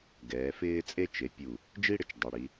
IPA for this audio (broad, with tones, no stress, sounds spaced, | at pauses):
ɡ ɛː˩˧ f ɪː˥ t͡sʼ e˥ t͡ʃ e˩˧ pʲ u˧˩ | d͡ʒ i˥ ɽ ɪ˧ t͡ʃ dˤ ɛ˩˧ ɽ i˩˧